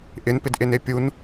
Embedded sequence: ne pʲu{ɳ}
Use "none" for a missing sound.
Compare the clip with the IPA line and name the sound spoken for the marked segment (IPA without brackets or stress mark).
n